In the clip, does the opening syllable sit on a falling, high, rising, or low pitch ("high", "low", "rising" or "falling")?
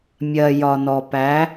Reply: low